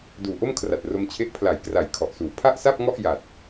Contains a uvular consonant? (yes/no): no